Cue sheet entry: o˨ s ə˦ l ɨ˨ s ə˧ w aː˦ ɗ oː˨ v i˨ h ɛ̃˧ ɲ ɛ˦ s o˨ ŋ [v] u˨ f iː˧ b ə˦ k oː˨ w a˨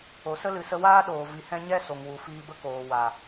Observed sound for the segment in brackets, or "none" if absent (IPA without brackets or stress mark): w